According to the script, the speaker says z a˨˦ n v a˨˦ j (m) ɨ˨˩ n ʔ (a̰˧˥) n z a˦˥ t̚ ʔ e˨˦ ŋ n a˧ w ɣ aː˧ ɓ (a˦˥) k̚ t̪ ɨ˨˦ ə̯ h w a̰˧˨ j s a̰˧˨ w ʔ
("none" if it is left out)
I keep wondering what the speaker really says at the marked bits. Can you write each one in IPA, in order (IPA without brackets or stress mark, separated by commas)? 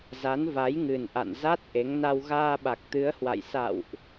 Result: ŋ, a̰˧˨, a˨˩